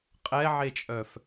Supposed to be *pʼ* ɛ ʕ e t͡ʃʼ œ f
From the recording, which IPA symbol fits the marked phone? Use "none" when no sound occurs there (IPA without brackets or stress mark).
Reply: qʼ